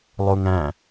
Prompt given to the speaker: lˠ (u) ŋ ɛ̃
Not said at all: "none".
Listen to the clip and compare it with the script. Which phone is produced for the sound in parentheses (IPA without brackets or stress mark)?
u